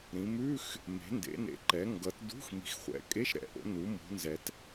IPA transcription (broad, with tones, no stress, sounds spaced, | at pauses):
ɾ ĩ˩˧ m ʉ˧˥˧ x | m e̤˩˧ n d ḛ˩˧ n ḛ˩˧ ǃ ɛ˩˧ ŋ ɡ ʌ˩˧ t d ṳ˧˥˧ x m i̤˩˧ x χʷ ɛ̰˩˧ kʼ e˧˥˧ ʃ ɾ ɛ̰˩˧ ʔ o̰˩˧ n u˩˧ m ṳ˩˧ n z ɛ˩˧ t